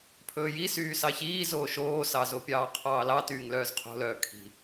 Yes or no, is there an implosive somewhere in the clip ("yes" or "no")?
no